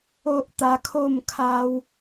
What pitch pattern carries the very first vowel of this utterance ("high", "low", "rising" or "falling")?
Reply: high